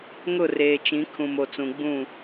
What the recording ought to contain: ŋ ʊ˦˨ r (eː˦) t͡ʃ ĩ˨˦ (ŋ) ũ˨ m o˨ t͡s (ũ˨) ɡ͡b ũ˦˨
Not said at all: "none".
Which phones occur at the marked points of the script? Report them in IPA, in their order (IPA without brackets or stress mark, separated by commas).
eː˨, kʰ, ũ˨